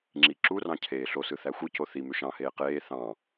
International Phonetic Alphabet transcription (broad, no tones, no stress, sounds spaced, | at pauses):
ŋ͡ǁ i ǁ u r ɑ̃ cʰ eː ɬ o s ɯ θ æ xʷ ɯ c o θ i m ø ʃ ɑ̃ h eː q eː θ ɑ̃